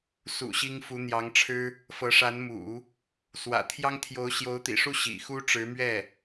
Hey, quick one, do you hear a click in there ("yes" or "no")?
no